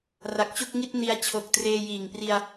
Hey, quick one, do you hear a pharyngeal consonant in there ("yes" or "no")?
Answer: no